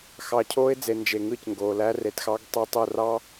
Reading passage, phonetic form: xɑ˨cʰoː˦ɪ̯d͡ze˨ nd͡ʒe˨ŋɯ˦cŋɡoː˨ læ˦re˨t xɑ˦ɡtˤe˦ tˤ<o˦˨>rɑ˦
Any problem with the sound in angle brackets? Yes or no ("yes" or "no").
no